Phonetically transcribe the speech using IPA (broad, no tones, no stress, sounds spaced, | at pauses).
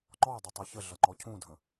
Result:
ŋ͡ǃ ɔ dˤ ʌ tˤ ʌ ç ə ɮ ʌ ŋ͡ǃ ɔ cʰ ũ dʱ ə̃